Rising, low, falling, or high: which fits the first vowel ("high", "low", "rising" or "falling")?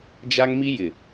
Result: high